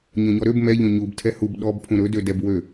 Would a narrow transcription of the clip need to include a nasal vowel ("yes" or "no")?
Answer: yes